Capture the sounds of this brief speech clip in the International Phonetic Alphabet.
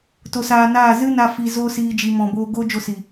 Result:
t o˧ s aː˧ n aː˦˨ z ɨ˦ n a˧ f i˧ z o˦ s iː˦ d͡ʒ i˧ m ɔ̃˨ b oː˧ ɡ o˦ d͡ʒ o˦ s i˨

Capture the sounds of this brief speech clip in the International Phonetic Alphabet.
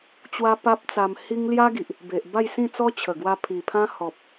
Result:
t͡ɕ w a˦ p a˦ p̚ t͡s a˧ m h i˦ ŋ l j a˦ ɡ i˨ ʔ | b e˨ ʔ b a˥˧ j s ĩ˥˧ t͡s ɔ˦ t͡ɕʰ ə˨˩ ɡ w a˧ pʰ i˨˩ pʰ ã˦ h ɔ˨ p̚

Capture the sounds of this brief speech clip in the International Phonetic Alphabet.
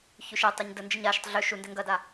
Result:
ç ʉ ʃ ɛ tˤ ø ɲ d ə n d͡ʒ ə ɲ a ʃ ə tˤ ɮ ø ʃ u n d ɛ ŋ ɡ ɐ d a

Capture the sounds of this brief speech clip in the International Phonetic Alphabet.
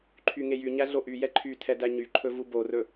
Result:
ǃʰ y ŋ e j y ɲ æ ɮ o ʔ y j ɛ ǃʰ y tʰ ɛ d æ ɲ y ǃʰ ɵ v u b o r ɵ

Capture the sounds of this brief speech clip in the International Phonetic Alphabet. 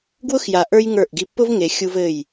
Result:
ɡ w ʊ˦ x j a˨ ʔ ə˞˦ j ŋ ə˞˦˨ ʔ ɡ i˦ pː ʊ˦ v ŋ e˨ xʲ u˦ v ɘ˦˨ j

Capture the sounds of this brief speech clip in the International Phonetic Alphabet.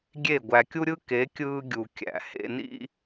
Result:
ɡʲ e˦˨ ɡʷ æ˨ kʲ u˦ ɾʲ ɯ˦ k e˨˦ kʲ ɯː˦ ɡʲ u˨ kʲ æ̰˨ h ḛ˨ n ḭ˦

